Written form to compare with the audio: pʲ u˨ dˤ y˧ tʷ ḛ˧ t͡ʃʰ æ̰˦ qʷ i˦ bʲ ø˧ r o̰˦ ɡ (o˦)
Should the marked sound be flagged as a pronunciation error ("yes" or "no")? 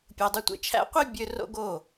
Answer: yes